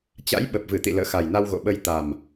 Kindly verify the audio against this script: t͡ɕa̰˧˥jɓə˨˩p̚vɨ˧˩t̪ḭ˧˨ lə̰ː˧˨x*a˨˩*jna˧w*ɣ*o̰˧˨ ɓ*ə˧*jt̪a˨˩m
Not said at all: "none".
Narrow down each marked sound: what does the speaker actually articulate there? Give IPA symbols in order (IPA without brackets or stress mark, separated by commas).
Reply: a˨˩, ɣ, ə˧